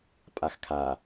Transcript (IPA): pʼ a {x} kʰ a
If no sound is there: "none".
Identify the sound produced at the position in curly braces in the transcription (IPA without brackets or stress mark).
x